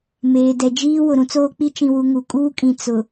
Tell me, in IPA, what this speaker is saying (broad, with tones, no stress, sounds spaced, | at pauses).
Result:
m eː˨ d ɛ˨ d͡ʒ iː˦ w ʊ˨ ɾ ũ˦ t͡s oː˦ k͡p i˦ t͡ʃ ĩ˨ w u˨ ŋ u˨ kʼ uː˦ kʼ ĩ˨ t͡s ʊ˨